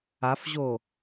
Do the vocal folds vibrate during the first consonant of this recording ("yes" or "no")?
no